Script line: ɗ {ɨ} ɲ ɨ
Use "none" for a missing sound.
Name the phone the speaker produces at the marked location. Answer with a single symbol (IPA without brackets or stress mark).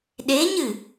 e